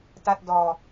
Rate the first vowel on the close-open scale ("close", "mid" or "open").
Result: open